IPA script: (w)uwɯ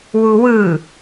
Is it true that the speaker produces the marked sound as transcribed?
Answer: yes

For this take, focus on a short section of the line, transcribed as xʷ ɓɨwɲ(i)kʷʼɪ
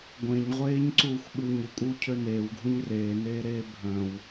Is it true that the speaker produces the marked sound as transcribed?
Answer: no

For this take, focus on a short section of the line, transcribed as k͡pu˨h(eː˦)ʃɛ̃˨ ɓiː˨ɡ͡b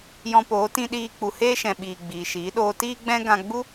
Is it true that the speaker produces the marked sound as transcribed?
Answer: yes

